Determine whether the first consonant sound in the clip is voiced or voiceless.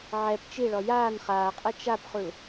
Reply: voiced